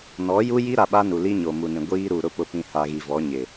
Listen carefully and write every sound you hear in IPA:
n ɔ˨˦ j u˦ j i˦ ɾ a˨ ɓ a˦ n u˨ l i˦ ɲ o˨ m u˨ n ĩ˨ ɡʷ iː˦ ɾ u˨ ɾ ʊ˦ p ʊ˨ p ĩ˨ h a˨ ɣ i˨ v ɔ˨˦ ɲ ɪ˨

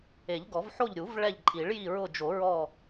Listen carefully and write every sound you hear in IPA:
e˨˩˦ ʎ ɡ ɔ˨˩˦ v ħ o˦˨ ʎ ɾʲ u˨˩˦ v ɭ ɛ˦˨ ʎ ǃʼ i˨˩˦ ɭ j i˦˨ ɹ ʊ˦˨ d͡ʒ o˨˩˦ ɹ ɔ˦˨

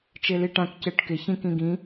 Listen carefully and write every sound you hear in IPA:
t͡ʃ e l i ʈ ã k c e ʈ k ɪ ç ĩ k ĩ ɡ ĩ

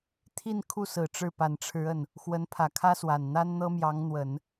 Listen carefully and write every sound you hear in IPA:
t̪ʰ i˥˧ n kʰ u˥˩ s ɹ̩˨˩ ʈ͡ʂ ɻ̩˥˩ p a˨˩ n ʈ͡ʂʰ ɻ̩˧˥ ə˥˩ n | x w ə˧˥ n pʰ ä˨˩ kʰ ä˥ s w a˨˩ n n̪ a˥ n n̪ ɤ˥ m j ɑ˧˥ ŋ n̪ w ə˨˩˦ n

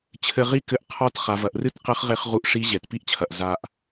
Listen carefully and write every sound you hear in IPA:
t͡ɕʰ ɘ˧ ʁ i˥ k ɘ˧ ʔ qʰ ɔ˧˥ t χ a˩˧ v ɐ˩˧ ʔ r ɨ˥ t q ɘ˧˥ χ ʁ e˧˥ χ ʁ u˧ ʔ ʂ i˧˥ ʑ ɛ˩ t p i˥ ʔ t͡ɕʰ ɐ˩ ʔ z a˧ ʔ

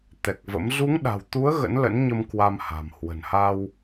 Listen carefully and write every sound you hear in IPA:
t̪ ɛ˨˩ k̚ v ə̰˧˥ m z u˨˦ ŋ ɗ a̤˨˩ w t̪ u˨˦ ə̯ ɣ ə̰˧˥ n l ə̰˧˥ n ɲ ə˧ m k w a˧ m h a̤˨˩ m h w ə̤˨˩ n h a˧ w

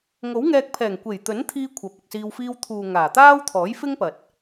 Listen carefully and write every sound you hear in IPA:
ŋ o˨˥ w ŋ ɛː˧ k̚ pʰ ɛː˨˩ ŋ kʷ e˨˩ j t̪ ɵ˨˥ n t̪ʰ iː˧ kʷʰ ɐ˨˥ p̚ ʊ˨ k̚ s iː˧ w f iː˧ w t̪ʰ uː˨ ŋ aː˨˩ t̪ aː˥ w t̪ʰ ɔː˨˥ j f ɪ˥ ŋ p ɐ˨ t̚

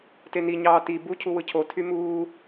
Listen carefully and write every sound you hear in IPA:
t e n i ɲ ɑː t i b u cʰ u w ɯ cʰ o tʰ y m uː

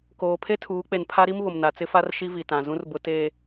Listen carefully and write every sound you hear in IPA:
k oː˨ pʰ e˦ tʰ uː˨˦ k͡p e˨ n pʰ a˦ ɾ i˦ m β ʊ˨ m n a˨ t͡s ɪ˦ f a˦ r ʃ i˦ v i˨ t ã˨ z ũ˦ r b ʊ˦ t eː˦

